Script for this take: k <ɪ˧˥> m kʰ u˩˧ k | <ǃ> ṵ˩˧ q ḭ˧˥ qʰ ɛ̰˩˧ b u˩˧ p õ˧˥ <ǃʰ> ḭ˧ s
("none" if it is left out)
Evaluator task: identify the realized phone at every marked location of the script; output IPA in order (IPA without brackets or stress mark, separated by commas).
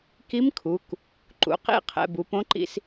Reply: i˧˥, ǃ, ǃ